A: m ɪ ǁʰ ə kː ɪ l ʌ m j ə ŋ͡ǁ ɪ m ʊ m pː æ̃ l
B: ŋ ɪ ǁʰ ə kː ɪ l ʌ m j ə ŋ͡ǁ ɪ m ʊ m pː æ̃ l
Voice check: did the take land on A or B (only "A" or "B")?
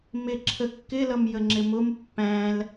A